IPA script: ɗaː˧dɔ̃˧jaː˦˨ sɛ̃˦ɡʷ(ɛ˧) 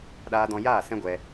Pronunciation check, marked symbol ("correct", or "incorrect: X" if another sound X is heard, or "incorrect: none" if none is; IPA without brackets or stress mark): correct